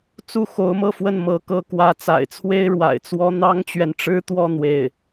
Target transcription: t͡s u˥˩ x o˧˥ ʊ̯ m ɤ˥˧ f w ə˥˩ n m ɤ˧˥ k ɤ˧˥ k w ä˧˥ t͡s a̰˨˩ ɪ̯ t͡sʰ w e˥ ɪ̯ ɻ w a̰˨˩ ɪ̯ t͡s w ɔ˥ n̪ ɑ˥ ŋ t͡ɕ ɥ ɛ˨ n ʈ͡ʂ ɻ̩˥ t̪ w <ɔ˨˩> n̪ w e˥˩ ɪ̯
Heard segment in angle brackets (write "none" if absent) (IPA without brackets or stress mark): ɔ˥˧